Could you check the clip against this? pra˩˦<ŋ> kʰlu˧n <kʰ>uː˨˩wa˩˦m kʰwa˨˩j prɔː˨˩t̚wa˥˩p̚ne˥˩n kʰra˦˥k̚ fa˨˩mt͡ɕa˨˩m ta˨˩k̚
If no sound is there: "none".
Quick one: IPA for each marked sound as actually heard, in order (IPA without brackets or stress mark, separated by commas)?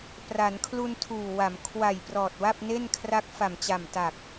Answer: n, tʰ